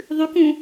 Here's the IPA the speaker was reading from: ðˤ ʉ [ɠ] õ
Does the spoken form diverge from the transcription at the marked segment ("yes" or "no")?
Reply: yes